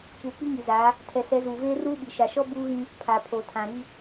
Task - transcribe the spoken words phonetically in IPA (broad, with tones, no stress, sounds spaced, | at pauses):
p uː˨ k͡p i˦ ŋ i˨ z a˨˦ | tʰ ɛ˨ s ɛ˨˦ z uː˨ v eː˦ r uː˦ ɓ i˨ ʃ a˨ ʃ ɔ˦ b uː˦ ɣ ĩ˦ | pʰ aː˨ pʰ oː˨ tʰ ã˨ ɾ i˦